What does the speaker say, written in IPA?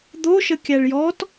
d̪ o ʃ ə kʲ æ ɭ j ɔ t

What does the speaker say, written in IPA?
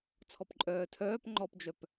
t͡sʰ ɔ p ǃʼ œː tʰ œː p ŋ͡ǃ ɔ p d͡ʒ œ p

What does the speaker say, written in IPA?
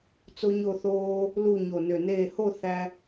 t͡s o˥ ɲ o˥˧ θ oː˥ | l u˥˧ ɲ o˧˩ n ø˧˩ n eː˥˧ h o˥˧ θ æ˧

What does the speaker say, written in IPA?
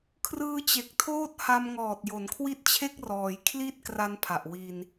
kʰ r ɯː˧ t͡ɕ e˨˩ k̚ tʰ oː˥˩ t̚ h a˧ m ŋ ɔː˨˩ t̚ j o˩˦ n kʰ w i˦˥ t̚ t͡ɕʰ e˥˩ k̚ r ɔː˩˦ j kʰ l i˥˩ t̚ k r a˦˥ n pʰ a˨˩ ʔ w i˧ n

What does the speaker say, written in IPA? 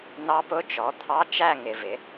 n ɑ˦˥ p ʊ˧˥˧ t͡ʃ ɔ˩˥ t̪ʰ ɑ˧˥˧ t͡ʃ æ˥˧ ŋ ɪ˨ v ɪ˩˥

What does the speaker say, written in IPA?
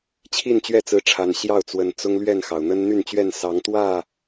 t͡ɕʰ i˥˨ n t͡ɕ ɥ ɛ˥˨ t͡s ɹ̩˨˦ ʈ͡ʂʰ a˨˩ n ɕ j ɑ˥˨ ʊ̯ t͡s w ə˨˩ n t͡s ʊ˦ ŋ l ɥ ɛ˥˨ n x ɑ˩ ʊ̯ n̪ ə˦ n n̪ y˥˨ n t͡ɕ ɥ ɛ˥˨ n s ɑ˨˦ ŋ t̪ w ä˥˨

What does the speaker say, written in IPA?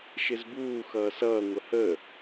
ʃ ɪ z b uː x ʌː s ʌː ŋʷ ə h ə

